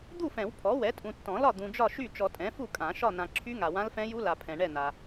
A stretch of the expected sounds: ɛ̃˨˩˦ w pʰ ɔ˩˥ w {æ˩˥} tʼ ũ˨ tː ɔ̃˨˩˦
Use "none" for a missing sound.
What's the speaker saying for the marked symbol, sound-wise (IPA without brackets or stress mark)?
ɛ˩˥